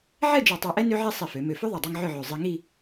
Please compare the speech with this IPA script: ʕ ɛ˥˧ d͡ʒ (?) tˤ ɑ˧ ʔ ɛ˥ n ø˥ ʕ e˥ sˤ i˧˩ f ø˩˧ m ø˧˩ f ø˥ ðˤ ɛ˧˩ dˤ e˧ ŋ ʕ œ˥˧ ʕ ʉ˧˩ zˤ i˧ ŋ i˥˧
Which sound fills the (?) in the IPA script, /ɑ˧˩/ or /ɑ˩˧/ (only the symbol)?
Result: ɑ˧˩